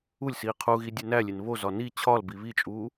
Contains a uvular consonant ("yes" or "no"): yes